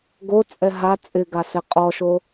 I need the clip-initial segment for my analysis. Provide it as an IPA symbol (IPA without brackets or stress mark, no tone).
ɡ